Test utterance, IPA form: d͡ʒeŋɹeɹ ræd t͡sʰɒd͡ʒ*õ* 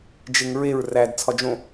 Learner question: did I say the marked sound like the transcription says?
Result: yes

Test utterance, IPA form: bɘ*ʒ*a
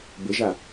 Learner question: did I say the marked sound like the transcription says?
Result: yes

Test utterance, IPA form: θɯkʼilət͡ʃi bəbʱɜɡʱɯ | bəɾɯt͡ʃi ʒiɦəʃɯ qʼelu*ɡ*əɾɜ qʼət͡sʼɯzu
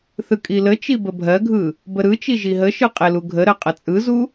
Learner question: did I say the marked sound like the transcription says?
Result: no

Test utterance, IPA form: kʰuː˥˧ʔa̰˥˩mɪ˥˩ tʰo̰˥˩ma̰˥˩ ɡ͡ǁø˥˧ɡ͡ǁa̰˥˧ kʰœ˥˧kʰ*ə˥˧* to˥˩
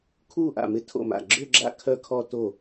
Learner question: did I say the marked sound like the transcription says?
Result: no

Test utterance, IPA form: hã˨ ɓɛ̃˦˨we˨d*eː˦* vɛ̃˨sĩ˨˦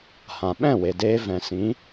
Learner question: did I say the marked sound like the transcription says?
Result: no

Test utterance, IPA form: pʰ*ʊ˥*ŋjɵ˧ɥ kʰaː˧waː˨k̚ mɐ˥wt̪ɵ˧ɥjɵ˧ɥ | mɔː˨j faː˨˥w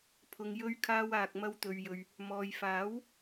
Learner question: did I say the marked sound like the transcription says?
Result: no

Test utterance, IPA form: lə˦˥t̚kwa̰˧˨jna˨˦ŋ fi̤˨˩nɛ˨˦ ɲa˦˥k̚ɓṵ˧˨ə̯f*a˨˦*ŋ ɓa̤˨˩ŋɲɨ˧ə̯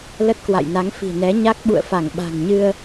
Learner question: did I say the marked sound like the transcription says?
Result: no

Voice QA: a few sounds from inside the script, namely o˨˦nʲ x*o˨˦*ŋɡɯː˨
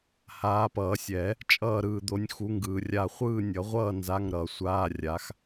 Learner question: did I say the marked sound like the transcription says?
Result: no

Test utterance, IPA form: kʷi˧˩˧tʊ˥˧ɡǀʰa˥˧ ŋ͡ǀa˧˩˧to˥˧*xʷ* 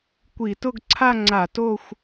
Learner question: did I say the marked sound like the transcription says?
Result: yes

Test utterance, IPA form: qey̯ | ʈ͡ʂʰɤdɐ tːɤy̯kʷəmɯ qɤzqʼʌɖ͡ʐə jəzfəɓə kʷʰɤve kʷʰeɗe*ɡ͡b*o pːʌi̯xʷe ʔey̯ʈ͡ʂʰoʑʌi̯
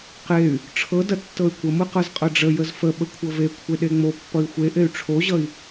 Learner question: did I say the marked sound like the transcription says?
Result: no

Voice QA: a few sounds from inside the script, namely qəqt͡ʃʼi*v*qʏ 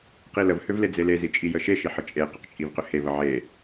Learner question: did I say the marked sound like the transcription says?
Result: yes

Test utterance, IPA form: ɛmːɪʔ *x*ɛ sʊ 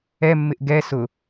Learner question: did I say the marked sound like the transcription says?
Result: no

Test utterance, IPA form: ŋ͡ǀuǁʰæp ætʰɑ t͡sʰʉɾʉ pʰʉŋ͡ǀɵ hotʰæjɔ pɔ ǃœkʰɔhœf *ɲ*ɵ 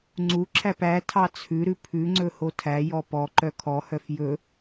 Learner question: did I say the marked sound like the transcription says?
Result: no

